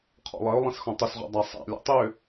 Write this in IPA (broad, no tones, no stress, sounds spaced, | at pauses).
qʰ ɔ̰ lˠ ɜ ʊ̯ lˠ ĩ s x ɔ̃ tˤ ʏ s ʁ ɔ̰ dˤ a sˤ a̰ lʲ ɔ̰ tˤ ʏ